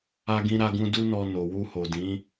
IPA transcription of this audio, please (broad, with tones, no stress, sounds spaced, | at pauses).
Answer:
a˧ ɡ ĩ˧ ɾ a˧ ɡ ũ˧ d u˦ n ɔ˧ n o˨ w u˧ h o˨ d ĩ˨˦